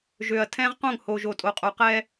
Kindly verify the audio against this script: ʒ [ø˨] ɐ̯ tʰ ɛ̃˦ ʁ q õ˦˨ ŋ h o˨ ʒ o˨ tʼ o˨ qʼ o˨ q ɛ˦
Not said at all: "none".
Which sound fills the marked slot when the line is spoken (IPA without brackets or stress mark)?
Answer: ø˨